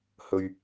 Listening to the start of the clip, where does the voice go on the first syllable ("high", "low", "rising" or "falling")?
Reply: low